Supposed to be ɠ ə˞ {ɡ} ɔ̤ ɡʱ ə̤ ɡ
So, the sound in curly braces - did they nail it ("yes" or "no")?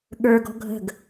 yes